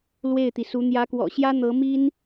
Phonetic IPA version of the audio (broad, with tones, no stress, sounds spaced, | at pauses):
l w e˥˩ ɪ̯ t̪ i˩ s u˧˥ n̪ j ä˧˥ k w ɔ̰˨˩ ɕ j ä˥ n̪ ɤ˧˥ m i˥ n